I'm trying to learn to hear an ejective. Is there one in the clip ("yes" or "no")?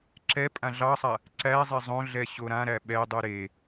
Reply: yes